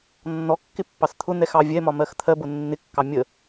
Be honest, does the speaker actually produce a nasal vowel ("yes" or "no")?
no